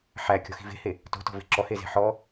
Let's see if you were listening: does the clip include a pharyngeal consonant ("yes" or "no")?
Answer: yes